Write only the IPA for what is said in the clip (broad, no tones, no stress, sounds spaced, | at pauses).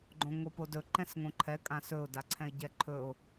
ɡ͡ǃ õ ŋ o p o d ɵ ǃ ɛ̃ s ŋ õ ǃʰ ɛ kʼ ã s ɵ ʊ̯ d a ǀʰ ɛ̃ ɪ̯ ɟ ɛ ǃʰ ɵ ʊ̯